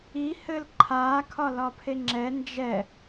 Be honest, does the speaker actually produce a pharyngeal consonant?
no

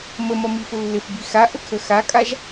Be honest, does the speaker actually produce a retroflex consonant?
no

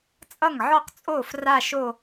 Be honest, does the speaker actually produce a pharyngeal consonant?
yes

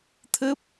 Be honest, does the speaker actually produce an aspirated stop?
yes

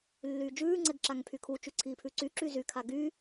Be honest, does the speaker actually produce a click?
yes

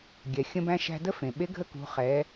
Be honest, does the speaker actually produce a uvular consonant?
yes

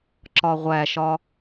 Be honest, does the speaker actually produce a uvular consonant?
yes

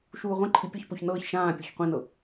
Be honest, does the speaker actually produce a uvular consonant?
yes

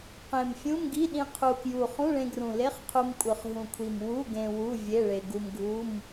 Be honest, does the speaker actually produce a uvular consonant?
yes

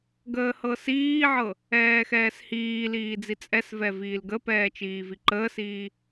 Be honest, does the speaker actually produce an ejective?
yes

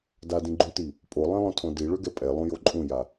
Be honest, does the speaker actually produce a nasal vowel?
yes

